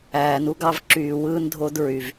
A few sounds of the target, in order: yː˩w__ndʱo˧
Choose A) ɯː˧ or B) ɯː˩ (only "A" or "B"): A